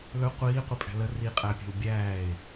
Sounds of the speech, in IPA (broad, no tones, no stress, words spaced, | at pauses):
lɵ qʷiːqʷipʼæ̤ lə riqʼæpʲɛ̤w bʲæːe̯